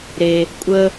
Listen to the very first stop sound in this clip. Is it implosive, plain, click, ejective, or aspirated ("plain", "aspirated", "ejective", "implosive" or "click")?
ejective